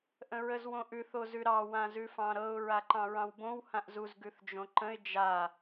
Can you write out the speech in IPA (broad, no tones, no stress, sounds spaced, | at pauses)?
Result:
ʔ ə̃ ɹ ə z w õ ʔ ʉ θ o z ʉ ɾ ɑ w ã z ʉ f ɑ̃ ɾ ɤ ʊ̯ ɹ a ǃ ɑ̃ ɹ ɑ̃ w b õ w h ã ʔ z u z ɡ ʉ θ d͡ʒ õ ǃ ə̃ ɪ̯ d͡ʒ a